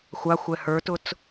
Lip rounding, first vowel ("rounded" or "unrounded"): unrounded